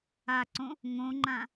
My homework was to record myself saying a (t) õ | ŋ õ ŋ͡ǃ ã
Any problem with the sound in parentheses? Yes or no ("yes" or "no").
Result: yes